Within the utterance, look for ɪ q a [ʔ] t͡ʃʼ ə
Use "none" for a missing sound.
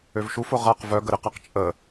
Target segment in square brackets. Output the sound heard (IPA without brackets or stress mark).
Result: q